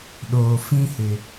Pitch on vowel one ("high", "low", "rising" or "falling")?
low